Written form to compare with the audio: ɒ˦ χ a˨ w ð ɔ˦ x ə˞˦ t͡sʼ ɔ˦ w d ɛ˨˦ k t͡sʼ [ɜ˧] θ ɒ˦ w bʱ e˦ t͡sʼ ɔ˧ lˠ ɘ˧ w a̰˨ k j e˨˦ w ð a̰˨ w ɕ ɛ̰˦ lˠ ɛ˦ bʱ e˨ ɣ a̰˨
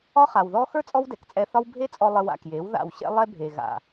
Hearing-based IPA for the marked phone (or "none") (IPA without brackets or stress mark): ɛ˧